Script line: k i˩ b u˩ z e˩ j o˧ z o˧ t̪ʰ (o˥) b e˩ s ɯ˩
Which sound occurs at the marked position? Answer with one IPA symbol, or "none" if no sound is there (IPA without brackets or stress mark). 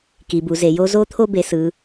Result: o˧